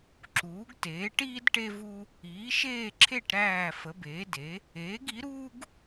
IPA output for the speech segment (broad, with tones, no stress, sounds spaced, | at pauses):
ǁ uː˩˥ ɡ t eː˩˥ ʈ iː˥ d ʈ e˥ v u˥ | iː˩˥ ʃ eː˥˨ ǁʰ e˥˨ ʈ ɾ æː˥˨ f ə˩˥ b eː˩˥ d e˩˥ | eː˩˥ ɡ i˩˥ ɾ uː˥ ɡ